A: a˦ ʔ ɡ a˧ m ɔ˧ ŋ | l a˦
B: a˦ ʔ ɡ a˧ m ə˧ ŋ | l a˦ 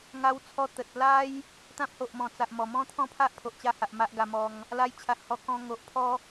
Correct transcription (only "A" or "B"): A